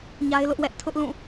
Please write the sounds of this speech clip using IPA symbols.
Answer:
ɲa˦ɪ̯lʊ˦ʔwɛ˦ʔ tʰʊ˦ʔlũ˦˨

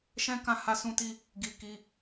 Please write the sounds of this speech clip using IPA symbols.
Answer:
ʃɛ̃˦kã˦˨ ha˧sũ˧ti˧ | ɡi˧ ki˧

